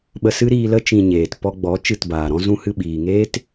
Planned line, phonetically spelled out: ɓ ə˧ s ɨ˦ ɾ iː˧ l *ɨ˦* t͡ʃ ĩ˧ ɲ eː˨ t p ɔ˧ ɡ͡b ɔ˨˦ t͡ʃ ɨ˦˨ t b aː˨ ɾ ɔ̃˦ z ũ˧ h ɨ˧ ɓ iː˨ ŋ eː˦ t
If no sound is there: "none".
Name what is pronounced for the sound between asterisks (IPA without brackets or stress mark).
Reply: ə˦